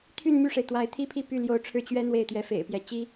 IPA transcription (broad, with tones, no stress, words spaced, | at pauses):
t̪ʰy˥˧nmy˥˩ʂe˩ɪ̯ t̪wa˧˥ɪ̯t̪ʰi˥pʰi˥˧ py˥˩ljo˧˥ʊ̯ʈ͡ʂʰɻ̩˥˩ t͡ɕɥɛ˥ n̪we˥˩ɪ̯t̪ɥɛ˧˥fḛ˨˩ɪ̯pjɛ˧˥ t͡ɕi˥